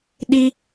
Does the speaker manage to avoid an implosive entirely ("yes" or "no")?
no